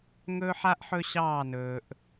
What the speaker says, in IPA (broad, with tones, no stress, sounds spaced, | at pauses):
ŋ ɵː˦ ħ a˦ ʔ ħ ɵ˦ ɕ ɑː˦˨ n ɵː˨ ʔ